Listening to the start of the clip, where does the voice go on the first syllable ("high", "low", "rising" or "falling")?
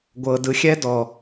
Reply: low